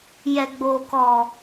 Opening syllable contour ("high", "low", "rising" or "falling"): low